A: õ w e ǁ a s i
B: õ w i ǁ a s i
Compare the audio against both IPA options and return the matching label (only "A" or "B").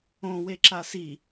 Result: A